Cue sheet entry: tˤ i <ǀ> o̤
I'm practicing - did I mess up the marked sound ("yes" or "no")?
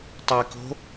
yes